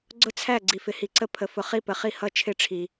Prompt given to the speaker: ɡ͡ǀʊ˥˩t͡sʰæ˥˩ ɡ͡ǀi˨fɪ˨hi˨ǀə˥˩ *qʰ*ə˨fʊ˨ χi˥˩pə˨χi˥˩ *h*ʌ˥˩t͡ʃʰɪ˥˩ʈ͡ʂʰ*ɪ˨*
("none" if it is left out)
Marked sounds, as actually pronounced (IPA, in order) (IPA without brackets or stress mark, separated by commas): pʰ, h, i˨